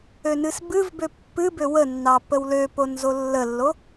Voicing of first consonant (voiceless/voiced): voiced